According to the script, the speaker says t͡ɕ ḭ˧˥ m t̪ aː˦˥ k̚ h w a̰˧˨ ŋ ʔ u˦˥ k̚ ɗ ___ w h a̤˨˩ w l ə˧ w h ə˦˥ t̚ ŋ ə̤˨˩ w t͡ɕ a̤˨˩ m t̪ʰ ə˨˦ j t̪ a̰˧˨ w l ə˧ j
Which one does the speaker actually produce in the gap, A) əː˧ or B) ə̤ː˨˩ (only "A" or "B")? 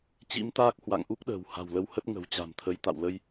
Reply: B